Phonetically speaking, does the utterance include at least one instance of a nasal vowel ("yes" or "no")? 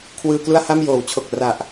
no